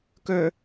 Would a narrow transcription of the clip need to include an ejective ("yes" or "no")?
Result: no